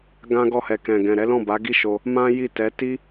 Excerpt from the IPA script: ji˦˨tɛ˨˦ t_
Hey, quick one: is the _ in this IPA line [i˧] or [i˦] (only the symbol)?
i˦